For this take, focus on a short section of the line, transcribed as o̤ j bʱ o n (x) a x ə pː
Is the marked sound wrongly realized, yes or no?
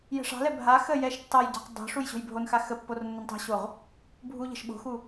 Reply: no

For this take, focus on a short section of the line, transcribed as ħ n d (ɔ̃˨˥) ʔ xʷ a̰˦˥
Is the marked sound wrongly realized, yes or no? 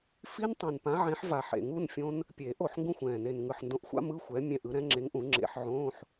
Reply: yes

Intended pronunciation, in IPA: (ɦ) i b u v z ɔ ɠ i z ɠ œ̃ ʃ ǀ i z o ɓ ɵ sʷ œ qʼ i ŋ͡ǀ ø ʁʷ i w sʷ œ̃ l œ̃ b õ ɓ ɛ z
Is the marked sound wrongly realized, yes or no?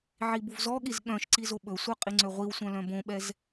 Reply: yes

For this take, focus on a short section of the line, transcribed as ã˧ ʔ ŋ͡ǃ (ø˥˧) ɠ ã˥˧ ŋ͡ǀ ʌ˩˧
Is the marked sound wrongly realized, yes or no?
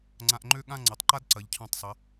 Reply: no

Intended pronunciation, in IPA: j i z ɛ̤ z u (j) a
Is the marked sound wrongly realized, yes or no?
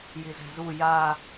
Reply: no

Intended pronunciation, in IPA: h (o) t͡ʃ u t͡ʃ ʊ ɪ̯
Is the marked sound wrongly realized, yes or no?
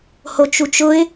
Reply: no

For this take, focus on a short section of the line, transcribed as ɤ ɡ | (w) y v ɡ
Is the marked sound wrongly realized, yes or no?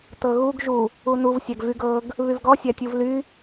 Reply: yes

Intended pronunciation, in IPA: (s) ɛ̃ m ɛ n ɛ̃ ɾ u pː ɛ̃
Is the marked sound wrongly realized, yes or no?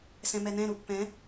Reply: no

